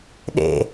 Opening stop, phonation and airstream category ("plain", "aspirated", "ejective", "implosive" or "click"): implosive